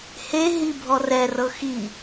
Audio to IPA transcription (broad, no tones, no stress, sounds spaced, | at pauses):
h e ɦ i bʱ ɔ r ɛ r ɤ x i